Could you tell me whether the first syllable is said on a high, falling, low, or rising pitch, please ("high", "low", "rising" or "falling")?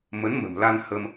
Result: rising